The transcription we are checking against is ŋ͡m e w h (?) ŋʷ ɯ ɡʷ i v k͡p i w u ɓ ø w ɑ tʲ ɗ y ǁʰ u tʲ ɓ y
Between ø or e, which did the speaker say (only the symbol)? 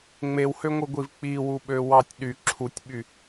ø